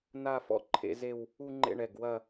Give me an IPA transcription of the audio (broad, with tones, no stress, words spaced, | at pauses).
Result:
na˥˧fɔ̰˥˧ ǃʰḛ˥˧ze˥˧w | u˥˧ŋ͡ǃḛ˥˧ɳɛ˩˧˩ɡ wɐ˥˧